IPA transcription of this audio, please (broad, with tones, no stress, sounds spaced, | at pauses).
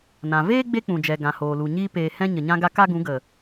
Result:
n ã˨ v eː˦ ɡ͡b e˦ k͡p ũ˨ d͡ʒ ɛ˨ ɡ ã˨ h oː˨ l u˨ ɲ iː˦ p eː˨ h ɛ̃˧ ɲ ə˨ ɲ ã˧ ɡ a˧ k a˦ ɡ ũ˨˦ ɡ ə˨